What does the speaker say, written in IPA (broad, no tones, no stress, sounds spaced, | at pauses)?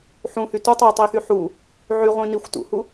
ħ ũ h y t u tˤ i tˤ i x y ħ u | ʕ y ʁʷ ĩ n i xʷ t ṵ h u